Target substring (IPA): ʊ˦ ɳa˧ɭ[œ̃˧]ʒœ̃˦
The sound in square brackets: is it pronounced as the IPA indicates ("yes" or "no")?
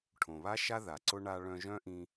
yes